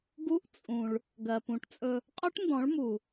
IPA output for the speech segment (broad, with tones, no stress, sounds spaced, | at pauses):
ɡ u˦ ʔ t͡sʼ ũ˨ ɭ | ɡ ɜ˨ p ũ˨ ʈ t͡sʼ ɵ˧ | qʼ ɵ˦ ʈ n d ɔ̃˨˦ ɭ m u˨